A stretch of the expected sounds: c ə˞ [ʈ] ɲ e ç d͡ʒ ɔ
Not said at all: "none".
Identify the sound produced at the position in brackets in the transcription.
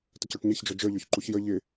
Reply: ʈ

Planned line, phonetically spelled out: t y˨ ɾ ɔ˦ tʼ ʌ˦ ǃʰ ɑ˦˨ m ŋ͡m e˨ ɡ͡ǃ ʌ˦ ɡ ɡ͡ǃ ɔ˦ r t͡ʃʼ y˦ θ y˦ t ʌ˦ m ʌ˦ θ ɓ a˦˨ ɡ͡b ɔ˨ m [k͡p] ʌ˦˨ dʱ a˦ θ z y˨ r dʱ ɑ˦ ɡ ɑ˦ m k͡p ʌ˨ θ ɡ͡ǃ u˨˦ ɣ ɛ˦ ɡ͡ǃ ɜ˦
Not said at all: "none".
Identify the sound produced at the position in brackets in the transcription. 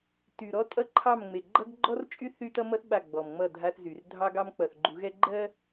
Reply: ŋ͡m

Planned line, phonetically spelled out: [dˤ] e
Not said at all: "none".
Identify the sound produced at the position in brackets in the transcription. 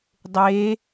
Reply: dˤ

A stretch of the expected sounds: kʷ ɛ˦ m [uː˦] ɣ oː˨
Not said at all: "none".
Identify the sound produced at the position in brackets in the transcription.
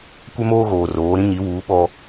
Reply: oː˦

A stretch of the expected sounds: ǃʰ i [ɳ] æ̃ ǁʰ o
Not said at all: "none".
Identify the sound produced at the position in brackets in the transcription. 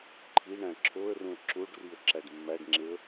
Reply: ɳ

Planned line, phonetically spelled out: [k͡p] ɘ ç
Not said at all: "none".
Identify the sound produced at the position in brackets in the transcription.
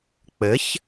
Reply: k͡p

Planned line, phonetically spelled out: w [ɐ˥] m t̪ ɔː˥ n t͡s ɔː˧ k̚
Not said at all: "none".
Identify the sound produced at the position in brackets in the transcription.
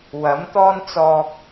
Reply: ɐ˨˥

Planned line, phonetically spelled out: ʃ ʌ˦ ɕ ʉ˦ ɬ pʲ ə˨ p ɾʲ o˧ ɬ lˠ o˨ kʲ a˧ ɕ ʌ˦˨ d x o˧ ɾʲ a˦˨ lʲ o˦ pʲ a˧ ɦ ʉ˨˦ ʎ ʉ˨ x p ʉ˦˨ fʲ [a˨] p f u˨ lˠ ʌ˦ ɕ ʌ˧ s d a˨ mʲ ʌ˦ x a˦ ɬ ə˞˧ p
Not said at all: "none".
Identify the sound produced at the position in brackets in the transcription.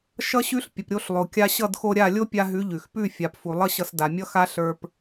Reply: a˨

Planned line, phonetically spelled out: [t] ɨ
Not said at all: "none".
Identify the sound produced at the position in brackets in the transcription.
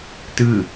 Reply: t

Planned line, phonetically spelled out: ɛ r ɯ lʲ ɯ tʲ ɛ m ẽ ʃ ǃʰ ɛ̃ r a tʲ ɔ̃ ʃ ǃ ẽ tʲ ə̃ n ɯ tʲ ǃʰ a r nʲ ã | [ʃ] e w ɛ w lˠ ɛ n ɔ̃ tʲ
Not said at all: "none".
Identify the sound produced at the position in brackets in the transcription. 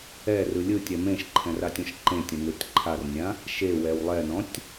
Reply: ʃ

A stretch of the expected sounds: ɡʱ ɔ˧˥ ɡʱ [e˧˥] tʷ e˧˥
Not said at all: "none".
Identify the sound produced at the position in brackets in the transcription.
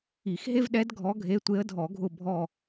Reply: e˧˥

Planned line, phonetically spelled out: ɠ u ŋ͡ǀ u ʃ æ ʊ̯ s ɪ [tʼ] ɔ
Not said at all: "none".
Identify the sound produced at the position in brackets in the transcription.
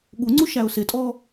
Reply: tʼ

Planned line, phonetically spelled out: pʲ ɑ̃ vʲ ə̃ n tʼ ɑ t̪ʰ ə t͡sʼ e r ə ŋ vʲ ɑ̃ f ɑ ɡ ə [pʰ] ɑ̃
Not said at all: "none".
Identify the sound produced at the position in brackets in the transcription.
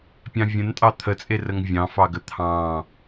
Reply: t̪ʰ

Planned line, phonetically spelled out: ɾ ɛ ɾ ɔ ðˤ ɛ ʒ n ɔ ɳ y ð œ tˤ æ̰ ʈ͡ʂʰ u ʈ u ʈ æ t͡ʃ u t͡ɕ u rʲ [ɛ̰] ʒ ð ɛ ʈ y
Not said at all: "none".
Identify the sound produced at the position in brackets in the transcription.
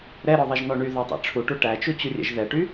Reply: ɛ̰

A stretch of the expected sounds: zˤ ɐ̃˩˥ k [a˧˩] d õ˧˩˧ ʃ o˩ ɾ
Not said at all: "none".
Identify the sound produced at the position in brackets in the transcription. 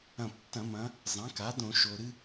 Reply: a˩˥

